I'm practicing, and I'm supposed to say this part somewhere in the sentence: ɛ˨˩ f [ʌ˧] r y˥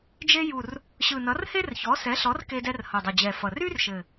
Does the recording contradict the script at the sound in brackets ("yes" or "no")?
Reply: yes